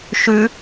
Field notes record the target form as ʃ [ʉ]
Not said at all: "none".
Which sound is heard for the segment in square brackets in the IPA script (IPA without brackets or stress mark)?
ʉ